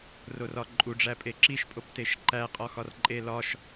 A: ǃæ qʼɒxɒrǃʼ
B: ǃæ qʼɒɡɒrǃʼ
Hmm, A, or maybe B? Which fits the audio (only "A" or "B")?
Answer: A